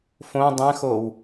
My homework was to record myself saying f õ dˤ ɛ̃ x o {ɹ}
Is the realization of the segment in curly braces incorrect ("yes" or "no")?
yes